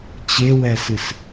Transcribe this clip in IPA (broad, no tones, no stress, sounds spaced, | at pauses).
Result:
t͡ɕ e w ɛ s ɨ s